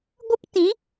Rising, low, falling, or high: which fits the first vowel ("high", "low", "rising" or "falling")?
high